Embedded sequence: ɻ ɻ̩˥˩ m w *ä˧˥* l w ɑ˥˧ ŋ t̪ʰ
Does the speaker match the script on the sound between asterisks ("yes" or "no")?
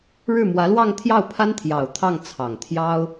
yes